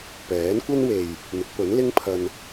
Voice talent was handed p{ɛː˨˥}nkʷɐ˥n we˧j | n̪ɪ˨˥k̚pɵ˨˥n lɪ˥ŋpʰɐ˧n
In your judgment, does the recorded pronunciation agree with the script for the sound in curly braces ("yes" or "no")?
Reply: yes